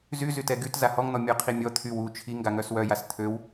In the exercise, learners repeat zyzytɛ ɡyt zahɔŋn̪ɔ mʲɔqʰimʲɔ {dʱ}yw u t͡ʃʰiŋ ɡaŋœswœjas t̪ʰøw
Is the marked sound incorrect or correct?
incorrect